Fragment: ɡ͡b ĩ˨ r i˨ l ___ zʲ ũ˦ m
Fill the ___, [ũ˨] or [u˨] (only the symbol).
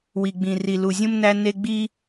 u˨